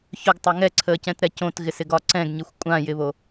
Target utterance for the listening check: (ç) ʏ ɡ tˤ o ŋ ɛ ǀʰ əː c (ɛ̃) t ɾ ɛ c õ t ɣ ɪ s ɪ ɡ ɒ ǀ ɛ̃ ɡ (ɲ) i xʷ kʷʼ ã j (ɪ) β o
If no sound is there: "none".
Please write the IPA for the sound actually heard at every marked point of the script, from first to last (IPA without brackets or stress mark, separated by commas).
ç, ɛ̃, ɲ, ɪ